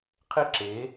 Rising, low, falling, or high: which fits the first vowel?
high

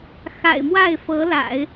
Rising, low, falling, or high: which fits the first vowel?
low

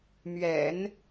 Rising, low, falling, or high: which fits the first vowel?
low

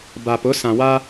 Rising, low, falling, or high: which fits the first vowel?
low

